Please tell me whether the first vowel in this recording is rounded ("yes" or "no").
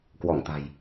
yes